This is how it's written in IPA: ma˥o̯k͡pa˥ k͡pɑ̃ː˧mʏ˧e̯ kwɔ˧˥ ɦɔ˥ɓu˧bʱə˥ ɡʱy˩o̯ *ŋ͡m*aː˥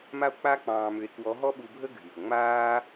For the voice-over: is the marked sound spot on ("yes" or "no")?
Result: yes